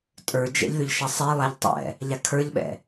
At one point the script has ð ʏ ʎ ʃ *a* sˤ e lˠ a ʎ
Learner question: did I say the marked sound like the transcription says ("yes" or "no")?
yes